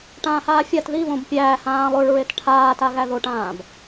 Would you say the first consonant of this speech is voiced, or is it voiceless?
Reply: voiceless